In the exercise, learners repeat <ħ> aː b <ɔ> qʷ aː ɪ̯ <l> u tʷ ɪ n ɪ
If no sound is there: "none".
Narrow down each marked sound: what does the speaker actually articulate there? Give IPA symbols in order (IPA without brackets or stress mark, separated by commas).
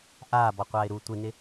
ʔ, ɔ, ɾ